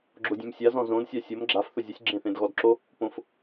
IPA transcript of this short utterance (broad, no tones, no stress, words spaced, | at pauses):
ɡ͡ǁodʲẽmsʲazɔ̃ zõdsʲa sʲom ɡ͡ǁaf θʊzʲʊsʲ ɡ͡ǁẽθẽdɣɔdǁo | põf